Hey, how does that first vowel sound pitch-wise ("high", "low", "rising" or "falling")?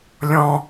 low